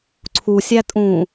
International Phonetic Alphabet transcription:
ǀʰ u sʲ æ tʼ ũː

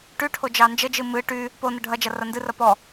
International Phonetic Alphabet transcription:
ʈ y ʈʰ o d͡ʒ ɑ n d͡ʒ ə d͡ʒ ɨ m ɨ ʈ y | p o n ə ɖʱ ɐ d͡ʒ ɐ r ɐ n d ɨ r ɐ p ɔ

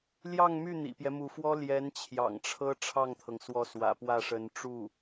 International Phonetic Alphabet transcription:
l j ɑ˥˧ ŋ m y˥˩ n̪ ḭ˨˩ p j ɛ˦ m u˧˥ f w ɔ˥ l j ɛ˧˥ n t͡ɕʰ j ɑ̰˨˩ ŋ ʈ͡ʂʰ ɤ˥ ʈ͡ʂʰ ɑ˥˩ ŋ t̪ʰ ɤ˩ ŋ s w ɔ˧˥ s w ä̰˨˩ p w ä˥˩ ʂ ə˧˥ n ʈ͡ʂ u˥˩

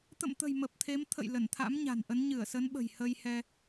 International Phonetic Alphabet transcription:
t̪ ə̰˧˨ m t̪ ə̤˨˩ j m ə˨˩ p̚ t̪ʰ e˨˦ m t̪ʰ ə̰˧˨ j l ə˧˩ n t̪ʰ a̰˧˥ m ɲ a̤˨˩ n ʔ ə˨˦ n ɲ ɨ˧˩ ə̯ s ə˨˦ n ɓ ə̤˨˩ j h ə˧ j h ɛ˧

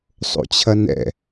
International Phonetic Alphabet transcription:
sˤ o̰ t͡ɕʰ ɐ n ɛ̰

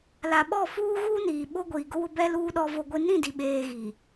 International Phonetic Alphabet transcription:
l a˨ ɓ ɔ˦˨ f uː˦ ɣ uː˦ n iː˨ ɓ o˦ ɡʷ iː˨ ɡ ʊ˦ w ʊ˦ b ɛ˦ l uː˦ ɗ ɔ˦ v o˦ ɡʷ i˦ n ĩ˦˨ d i˨ ɓ eː˨ ɣ i˨

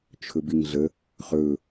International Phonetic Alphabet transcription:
t͡ʃʰ ɵ b i ŋ ɮ ə | χ ɵ

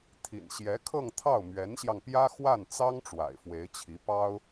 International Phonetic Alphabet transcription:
t̪ʰ ḭ˨˩ n ɕ j ɛ˧˥ kʰ ɤ˥˧ ŋ t̪ʰ ɑ˥˩ ʊ̯ m ɥ ɛ˧˥ n ɕ j ɑ˧ ŋ p j ä˥ x w a˥˩ n t͡s ɑ˥ ŋ ʈ͡ʂ w a̰˨˩ ɪ̯ f w e˧˥ ɪ̯ t͡ɕʰ i˧˥ p ɑ˥ ʊ̯

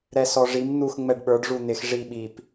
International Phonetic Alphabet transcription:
ɾ ɛ s ɔ ʐ i m n̪ u x ŋ͡m ɛ ɖ ɓ ə˞ ɖ ʐ u n̪ ɪ x ʐ i ɓ i p

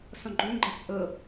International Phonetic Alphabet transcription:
s ɔ̃ ɡ͡ǃ ɵ ŋ ɡ͡ǃ a p ʔ ɤ

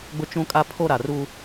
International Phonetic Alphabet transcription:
ɡ͡b ʊ˦ t͡ʃ ũ˦ kʼ a˦ pʰ o˦ ɾ a˨ r uː˦

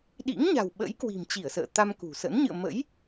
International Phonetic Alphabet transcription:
ɗ ḭ˧˥ ŋ ɲ a̤˨˩ w ɓ ə̰˧˥ j k w i̤˨˩ m t͡ɕ i˧˩ ə̯ s ə̰ː˧˨ t̪ a˧ m k ṳ˨˩ s ə̰˧˥ n ɲ ɨ̰˧˨ ə̯ m ə̰˧˥ j

